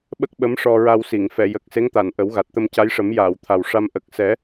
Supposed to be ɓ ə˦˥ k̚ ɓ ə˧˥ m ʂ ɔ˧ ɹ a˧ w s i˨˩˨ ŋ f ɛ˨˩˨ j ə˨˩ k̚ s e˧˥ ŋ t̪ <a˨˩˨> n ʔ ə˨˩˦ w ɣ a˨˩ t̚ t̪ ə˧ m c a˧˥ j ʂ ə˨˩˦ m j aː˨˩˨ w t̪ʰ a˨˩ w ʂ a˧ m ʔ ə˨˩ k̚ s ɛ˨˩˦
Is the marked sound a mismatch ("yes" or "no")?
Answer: no